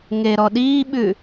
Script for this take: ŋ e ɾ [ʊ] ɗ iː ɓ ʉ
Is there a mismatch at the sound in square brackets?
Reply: yes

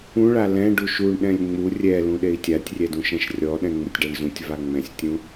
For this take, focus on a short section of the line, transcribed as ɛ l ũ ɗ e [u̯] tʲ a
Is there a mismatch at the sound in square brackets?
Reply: yes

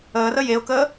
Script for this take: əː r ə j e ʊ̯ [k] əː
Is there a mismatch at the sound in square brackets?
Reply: no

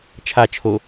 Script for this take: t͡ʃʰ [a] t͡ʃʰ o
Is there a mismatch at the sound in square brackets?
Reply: no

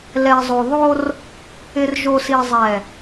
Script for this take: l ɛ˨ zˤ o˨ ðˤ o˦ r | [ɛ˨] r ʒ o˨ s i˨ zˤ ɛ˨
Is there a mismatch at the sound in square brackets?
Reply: yes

